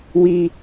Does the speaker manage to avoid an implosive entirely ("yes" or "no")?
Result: yes